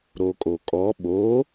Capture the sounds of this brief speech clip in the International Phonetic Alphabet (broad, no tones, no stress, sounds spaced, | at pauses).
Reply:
ɾ o kʼ o kʼ ɔ ɓ o